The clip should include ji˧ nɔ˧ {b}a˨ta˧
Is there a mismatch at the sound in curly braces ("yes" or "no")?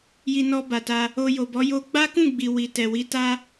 no